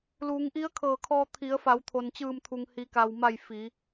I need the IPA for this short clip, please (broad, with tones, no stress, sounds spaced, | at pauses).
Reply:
l uː˩˧ ŋ ʔ i˧˥ ə̯ kʰ ɤː˧˩ kʰ ɔː˧ t̪ʰ i˩˧ ə̯ f a˩˧ w t̪ʰ o˩ n t͡ɕ ɯː˧˩ m t̪ʰ u˩ ŋ h i˩ k a˩ w m a˧˩ j f i˩˧